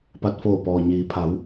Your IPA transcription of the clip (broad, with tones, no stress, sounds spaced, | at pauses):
p a˧˩ t̚ f oː˧˩ p ɔː˩ ɲ iː˩˧ pʰ a˩˧ w